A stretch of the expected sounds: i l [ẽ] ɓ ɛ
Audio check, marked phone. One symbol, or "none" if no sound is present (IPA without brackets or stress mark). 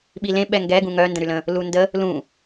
ẽ